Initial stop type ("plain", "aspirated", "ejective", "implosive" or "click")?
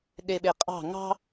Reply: implosive